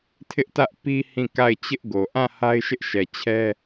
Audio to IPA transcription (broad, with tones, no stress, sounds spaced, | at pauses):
tʰ ɪ˦ ʔ t ä˦ ʔ p i˦ h ĩ˦˨ k a˦˨ ɪ̯ t͡ɕ ɪ˦ ʔ ɡ o˨ ʔ ã˦˨ h a˦ ɪ̯ ʃ ɪ˦ ʔ ʃ ɛ˨ t͡ɕʰ ɛ˦